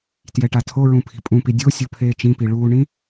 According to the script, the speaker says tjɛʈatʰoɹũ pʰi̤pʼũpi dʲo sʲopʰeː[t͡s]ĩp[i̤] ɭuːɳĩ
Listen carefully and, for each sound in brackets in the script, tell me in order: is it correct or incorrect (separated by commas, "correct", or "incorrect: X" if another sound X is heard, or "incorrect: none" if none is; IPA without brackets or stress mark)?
incorrect: t͡ʃ, incorrect: i